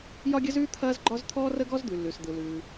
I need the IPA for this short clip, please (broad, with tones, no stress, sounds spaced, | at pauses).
j ɒ˥ ɡʲ ə˥ z ʉː˥ t̪ʰ ɐː˥ z ɡ͡ǃ ɒ˥ z t̪ʰ ɔː˥ r ə˥ ɡ ɔ˥ z d̪ ʉ˩ lː ʉ˩ s d̪ ɯ˩ l ʉː˩